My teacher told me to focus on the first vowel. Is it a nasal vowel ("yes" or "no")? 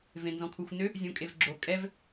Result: yes